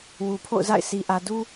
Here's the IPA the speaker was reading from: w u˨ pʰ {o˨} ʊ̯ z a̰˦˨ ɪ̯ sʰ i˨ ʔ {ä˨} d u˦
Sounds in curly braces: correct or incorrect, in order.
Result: incorrect, correct

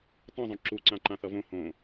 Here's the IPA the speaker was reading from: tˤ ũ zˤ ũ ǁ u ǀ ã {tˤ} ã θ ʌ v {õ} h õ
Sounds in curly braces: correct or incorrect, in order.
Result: incorrect, correct

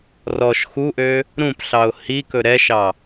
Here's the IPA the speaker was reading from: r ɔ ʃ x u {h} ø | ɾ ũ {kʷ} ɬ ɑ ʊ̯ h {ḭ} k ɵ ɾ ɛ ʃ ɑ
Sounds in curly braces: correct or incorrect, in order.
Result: incorrect, incorrect, incorrect

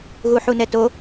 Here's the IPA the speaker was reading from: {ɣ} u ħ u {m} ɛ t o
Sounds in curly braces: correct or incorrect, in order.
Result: correct, incorrect

